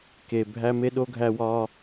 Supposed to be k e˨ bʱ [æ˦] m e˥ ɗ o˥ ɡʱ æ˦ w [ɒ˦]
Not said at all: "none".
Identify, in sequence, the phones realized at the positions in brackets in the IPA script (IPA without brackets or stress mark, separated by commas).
æ˥, ɒ˦